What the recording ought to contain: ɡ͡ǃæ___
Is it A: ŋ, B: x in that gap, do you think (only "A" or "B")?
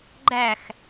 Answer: B